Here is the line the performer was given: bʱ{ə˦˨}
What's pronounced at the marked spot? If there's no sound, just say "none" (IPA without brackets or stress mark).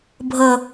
ə˦˨